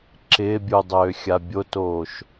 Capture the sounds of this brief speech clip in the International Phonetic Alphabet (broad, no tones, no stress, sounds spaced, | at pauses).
ǁ ɪː bʲ u dˤ øː xʲ a bʲ o t oː ʃ